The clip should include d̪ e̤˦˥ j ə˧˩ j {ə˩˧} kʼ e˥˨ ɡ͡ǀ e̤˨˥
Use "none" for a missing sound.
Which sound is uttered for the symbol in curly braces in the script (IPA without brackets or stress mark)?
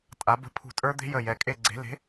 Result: ɛ˩˧